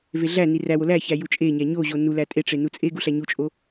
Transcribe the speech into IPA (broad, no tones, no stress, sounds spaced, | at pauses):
v e ɮ æ n i r æ w o l æ ç æ j u t͡ʃʼ e ɲ æ ɲ o ʑ o n u l æ tʼ e ʈ͡ʂ e n u t͡sʼ e ɡ u ɬ æ ɲ u t͡ʃʼ o